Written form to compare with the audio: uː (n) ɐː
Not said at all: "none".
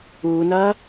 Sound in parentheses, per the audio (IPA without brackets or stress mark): n